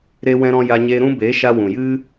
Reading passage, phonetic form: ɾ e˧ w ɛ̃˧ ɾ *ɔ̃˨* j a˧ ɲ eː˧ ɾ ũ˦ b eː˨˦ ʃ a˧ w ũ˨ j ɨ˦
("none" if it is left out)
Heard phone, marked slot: ɔ̃˧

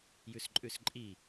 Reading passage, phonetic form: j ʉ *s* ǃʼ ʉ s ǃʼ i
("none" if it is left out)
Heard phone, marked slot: s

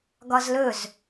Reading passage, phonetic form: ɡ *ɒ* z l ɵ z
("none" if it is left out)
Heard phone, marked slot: ɒ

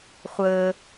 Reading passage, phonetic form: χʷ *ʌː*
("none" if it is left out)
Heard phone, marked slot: əː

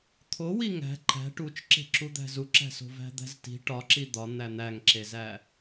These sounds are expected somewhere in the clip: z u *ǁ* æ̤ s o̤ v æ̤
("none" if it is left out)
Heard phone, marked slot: ǁ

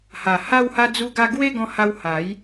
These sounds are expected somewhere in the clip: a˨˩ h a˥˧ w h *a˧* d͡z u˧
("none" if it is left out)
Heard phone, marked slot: a˧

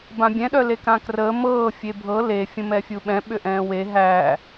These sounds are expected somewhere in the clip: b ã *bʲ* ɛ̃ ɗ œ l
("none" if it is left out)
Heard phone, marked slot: bʲ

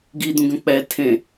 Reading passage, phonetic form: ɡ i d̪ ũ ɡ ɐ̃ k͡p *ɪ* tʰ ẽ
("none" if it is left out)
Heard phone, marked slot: ɛ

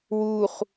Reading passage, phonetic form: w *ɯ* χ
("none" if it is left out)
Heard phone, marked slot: u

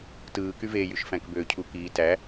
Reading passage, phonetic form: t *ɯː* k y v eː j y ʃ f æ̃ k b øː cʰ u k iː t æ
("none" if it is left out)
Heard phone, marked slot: ɯː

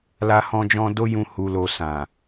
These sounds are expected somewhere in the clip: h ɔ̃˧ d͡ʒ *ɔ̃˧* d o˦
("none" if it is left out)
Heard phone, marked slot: ɔ̃˧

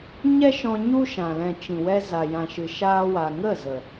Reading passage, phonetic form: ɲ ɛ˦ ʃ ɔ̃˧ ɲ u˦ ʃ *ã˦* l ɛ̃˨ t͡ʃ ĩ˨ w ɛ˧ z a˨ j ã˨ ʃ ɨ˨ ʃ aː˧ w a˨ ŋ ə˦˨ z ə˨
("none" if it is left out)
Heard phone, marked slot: ã˨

